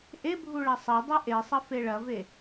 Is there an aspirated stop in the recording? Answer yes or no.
no